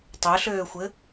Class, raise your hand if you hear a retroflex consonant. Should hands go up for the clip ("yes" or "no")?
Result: no